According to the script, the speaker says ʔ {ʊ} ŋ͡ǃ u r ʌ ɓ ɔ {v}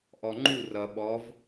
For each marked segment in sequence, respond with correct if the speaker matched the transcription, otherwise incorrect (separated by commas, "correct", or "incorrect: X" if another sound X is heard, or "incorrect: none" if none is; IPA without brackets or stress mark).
incorrect: ɔ, correct